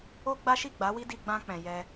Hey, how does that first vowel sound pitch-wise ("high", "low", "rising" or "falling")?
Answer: high